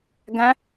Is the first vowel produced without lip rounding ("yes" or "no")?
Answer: yes